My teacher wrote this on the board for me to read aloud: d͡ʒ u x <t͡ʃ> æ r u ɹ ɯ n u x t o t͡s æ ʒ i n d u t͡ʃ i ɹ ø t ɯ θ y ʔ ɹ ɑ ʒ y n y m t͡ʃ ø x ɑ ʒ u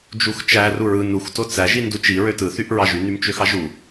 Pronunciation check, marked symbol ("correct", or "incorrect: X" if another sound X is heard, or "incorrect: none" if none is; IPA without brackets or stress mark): correct